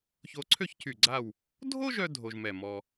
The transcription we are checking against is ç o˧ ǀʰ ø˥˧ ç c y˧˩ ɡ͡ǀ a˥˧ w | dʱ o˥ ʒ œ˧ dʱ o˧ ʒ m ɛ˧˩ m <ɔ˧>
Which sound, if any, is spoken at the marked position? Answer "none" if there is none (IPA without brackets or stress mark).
ɔ˧